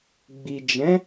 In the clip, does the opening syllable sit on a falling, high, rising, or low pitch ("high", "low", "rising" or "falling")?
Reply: low